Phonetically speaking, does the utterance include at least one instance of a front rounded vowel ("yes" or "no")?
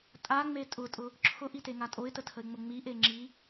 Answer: no